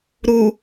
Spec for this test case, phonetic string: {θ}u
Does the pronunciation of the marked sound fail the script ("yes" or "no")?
yes